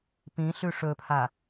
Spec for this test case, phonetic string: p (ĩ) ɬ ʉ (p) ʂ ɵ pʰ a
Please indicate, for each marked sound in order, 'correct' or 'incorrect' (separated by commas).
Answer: correct, incorrect